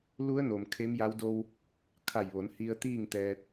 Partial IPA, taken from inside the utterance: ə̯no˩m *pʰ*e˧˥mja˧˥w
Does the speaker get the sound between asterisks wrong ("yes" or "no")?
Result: yes